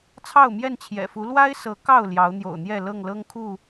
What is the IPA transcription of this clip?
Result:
t͡sʰ ɑ˥˨ ʊ̯ m j ɛ˥˨ n t͡ɕʰ j ɛ̰˨˩ f u˨˦ l w a˦ ɪ̯ s ɤ˨˦ k ɑ˥˨ ʊ̯ l j ɑ˨˦ ʊ̯ n̪ j o̰˨˩ ʊ̯ n̪ j ɛ˥˨ l ɤ˥˨ ŋ l ɤ˦ ŋ kʰ u˥˨

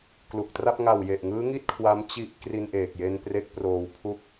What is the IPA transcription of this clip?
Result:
k l u˨˩ k̚ t r a˥˩ p̚ ŋ a˨˩ w j e˨˩ ʔ ŋ ɯː˦˥ ŋ i˥˩ t̚ kʰ w a˦˥ m t͡ɕ i˦˥ ʔ k r i˧ n ʔ eː˨˩ k̚ j e˧ n p r e˦˥ k̚ p r oː˧ w pʰ u˥˩ k̚

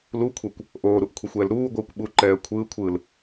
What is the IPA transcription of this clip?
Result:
l u kʷʰ ɛ kʷ | ʔ oː ɾ u ʔ kʷʰ ɛ xʷ ɛː l ɾ uː ɡʷ ɯː kʷ ɓ u ǃ ɛː ə̯ kʷʰ ɯː kʷʰ ɯː l

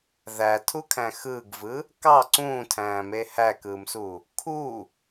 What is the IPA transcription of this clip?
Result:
ð æ tʰ u kʰ æ̃ x ɯː ɡ v ɯ | k ɑ ǀ ũː tʰ æ̃ː m e h æ k ɯː m s u | kʰ u

